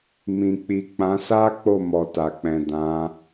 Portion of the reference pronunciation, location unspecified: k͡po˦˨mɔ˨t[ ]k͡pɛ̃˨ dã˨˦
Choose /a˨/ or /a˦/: a˨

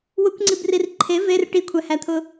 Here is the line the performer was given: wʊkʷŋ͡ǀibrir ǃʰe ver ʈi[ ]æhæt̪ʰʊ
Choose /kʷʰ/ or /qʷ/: kʷʰ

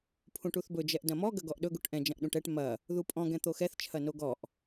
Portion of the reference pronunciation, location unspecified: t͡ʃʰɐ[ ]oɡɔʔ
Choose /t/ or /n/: n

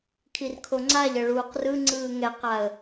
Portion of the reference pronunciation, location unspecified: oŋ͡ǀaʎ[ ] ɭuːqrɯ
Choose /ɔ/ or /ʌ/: ʌ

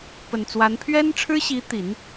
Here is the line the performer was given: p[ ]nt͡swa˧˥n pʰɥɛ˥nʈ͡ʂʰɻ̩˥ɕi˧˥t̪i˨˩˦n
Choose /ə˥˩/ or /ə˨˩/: ə˨˩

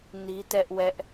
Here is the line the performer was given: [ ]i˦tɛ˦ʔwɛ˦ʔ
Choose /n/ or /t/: n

